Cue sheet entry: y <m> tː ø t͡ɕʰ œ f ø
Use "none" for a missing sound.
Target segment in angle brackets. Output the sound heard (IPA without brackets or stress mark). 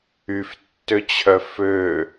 f